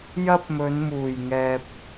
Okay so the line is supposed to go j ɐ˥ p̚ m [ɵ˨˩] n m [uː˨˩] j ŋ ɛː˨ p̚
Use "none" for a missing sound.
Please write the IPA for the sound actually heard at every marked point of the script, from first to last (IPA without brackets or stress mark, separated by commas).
ɵ˨˧, uː˨˩